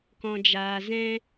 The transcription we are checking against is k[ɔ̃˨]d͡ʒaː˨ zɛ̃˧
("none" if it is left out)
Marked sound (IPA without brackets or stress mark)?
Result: ɔ̃˨